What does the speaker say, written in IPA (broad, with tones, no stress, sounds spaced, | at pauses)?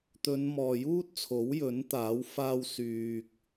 t̪ ɵ˨˧ n m ɔː˨ j uː˥ t̚ t͡sʰ o˨˥ w j ɵ˨˥ n t̪ aː˨˥ w f aː˧ w s yː˨ k̚